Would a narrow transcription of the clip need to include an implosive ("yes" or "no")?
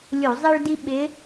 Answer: yes